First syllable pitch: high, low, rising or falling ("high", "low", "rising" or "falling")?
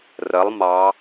rising